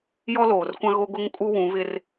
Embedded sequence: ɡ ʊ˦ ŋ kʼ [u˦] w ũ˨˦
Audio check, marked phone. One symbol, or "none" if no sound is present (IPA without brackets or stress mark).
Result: u˦